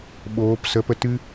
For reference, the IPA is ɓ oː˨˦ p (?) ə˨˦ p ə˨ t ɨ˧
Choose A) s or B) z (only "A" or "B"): A